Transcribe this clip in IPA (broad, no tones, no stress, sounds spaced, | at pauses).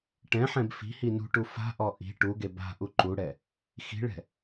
ʈ ɛ̃ ħ ɛ̃ b f i̤ h i n ṳ ʈ u f a̤ ʔ ɔ ʔ i̤ ʈ u ɡ e b a̤ ʔ u ǃ u ɽ ɛ | x i̤ ɭ ɛ̤